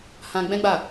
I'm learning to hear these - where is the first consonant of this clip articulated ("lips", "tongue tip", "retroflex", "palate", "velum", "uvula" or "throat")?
throat